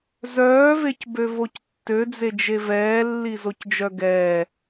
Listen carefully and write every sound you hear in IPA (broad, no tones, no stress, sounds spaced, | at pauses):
z œː v e c b ø v o c tː ø d͡z e d͡ʒ e v ɛː lː i z o c d͡ʒ œ ɡ ɛː